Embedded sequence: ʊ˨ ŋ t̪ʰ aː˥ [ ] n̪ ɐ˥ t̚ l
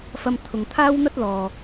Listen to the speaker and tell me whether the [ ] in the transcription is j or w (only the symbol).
w